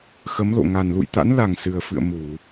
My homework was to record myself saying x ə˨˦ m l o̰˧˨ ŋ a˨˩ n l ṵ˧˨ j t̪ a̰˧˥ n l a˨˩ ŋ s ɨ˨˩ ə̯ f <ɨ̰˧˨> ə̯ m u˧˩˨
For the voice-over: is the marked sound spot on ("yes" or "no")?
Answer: yes